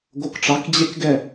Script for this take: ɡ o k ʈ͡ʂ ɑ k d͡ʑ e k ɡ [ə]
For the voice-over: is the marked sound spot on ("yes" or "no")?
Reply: no